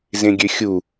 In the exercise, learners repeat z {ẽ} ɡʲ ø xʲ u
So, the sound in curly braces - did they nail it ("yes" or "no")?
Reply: yes